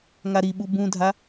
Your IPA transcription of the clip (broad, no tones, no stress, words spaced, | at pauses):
ŋaɾiɓu bũdʱa